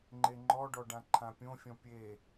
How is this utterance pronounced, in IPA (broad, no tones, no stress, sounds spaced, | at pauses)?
ŋ͡ǃ e ŋ͡ǃ ɔ ɖ ɔ ɖ ã ǃʰ ã pʲ õ fʲ ɔ̃ pʲ e